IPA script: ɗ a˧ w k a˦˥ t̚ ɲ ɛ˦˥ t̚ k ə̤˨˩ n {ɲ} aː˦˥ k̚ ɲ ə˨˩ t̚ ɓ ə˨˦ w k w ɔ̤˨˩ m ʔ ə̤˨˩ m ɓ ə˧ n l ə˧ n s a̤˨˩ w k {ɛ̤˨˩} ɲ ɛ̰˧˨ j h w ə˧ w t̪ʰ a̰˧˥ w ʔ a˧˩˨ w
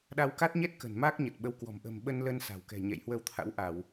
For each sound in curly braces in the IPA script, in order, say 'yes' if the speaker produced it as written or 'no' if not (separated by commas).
no, yes